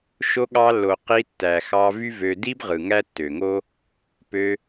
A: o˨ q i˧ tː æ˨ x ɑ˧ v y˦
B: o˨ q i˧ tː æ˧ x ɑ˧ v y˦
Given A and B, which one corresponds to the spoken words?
A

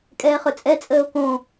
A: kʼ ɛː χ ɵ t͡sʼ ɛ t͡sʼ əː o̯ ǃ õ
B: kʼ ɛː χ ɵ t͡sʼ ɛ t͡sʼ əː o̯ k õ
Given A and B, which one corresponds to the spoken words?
B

